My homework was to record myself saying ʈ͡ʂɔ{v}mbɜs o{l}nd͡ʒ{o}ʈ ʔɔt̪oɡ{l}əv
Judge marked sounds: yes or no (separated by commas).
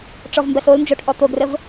yes, yes, yes, no